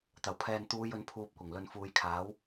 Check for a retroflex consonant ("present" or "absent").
absent